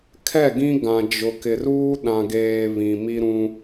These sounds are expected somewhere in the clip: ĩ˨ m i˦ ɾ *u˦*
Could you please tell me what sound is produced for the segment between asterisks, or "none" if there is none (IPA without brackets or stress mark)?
ũ˦